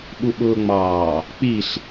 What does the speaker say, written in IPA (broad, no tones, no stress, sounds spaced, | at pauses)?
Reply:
ɓ u ɓ ʊː ŋ͡m ɑː | k͡p i ɬ